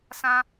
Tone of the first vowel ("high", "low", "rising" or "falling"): high